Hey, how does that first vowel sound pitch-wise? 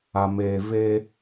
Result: low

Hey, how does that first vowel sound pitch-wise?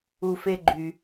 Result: high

